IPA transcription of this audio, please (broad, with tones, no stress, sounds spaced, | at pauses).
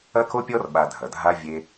ɐ˦ k o˦ pʲ ɔ˦ r ɓ a˧ dʱ ɐ˨ dʱ a˦ vʲ e˧